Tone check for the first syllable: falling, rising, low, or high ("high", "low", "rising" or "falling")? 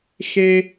high